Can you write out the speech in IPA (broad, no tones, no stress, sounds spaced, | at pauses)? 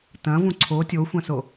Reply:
t ɐ̃ v ũ ǀʰ o tʲ o xʷ ã s o